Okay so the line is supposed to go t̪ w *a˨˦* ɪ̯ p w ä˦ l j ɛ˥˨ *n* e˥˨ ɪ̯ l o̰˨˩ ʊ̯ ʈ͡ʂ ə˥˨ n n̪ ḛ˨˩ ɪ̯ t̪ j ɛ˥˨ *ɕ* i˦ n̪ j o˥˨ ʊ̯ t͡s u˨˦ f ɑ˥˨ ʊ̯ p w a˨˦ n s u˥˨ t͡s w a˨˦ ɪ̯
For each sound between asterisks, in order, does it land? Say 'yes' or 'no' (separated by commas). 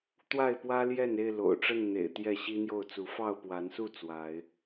no, yes, yes